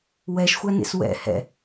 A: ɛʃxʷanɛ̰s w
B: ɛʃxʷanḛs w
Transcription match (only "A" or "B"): B